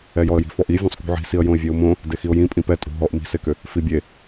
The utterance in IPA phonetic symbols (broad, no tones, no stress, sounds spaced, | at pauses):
ɛ j ɔ ə̯ j i̤ f ɔ ʔ i vʲ õ sˤ k ṳ ʕ i̤ s i ə̯ j õ ɪ̯ vʲ e ʊ̯ m õ | d e x i ʊ̯ j ĩ pʼ ĩ p ɛ tʼ ṳ ɦ ɔ ʔ m i̤ s e k ʏ | f i bʲ e